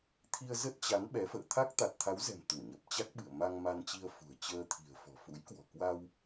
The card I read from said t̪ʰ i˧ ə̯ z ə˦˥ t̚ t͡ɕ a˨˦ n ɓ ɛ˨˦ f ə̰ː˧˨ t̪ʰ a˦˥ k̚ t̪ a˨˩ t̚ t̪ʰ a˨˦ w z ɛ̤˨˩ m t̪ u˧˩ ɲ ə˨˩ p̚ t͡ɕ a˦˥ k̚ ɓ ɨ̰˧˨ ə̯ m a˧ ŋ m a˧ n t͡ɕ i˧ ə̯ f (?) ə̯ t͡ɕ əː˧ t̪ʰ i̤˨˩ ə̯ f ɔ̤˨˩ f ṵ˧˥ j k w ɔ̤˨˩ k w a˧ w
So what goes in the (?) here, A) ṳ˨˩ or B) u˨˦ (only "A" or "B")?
A